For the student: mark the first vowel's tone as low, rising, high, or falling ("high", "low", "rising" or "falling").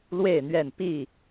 falling